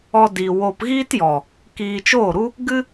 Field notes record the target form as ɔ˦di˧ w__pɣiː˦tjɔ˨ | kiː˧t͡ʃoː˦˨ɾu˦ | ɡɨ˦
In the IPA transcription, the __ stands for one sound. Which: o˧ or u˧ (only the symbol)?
o˧